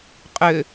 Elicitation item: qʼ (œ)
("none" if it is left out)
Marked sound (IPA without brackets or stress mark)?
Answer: ø